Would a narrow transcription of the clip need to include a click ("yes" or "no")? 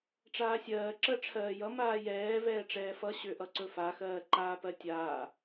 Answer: yes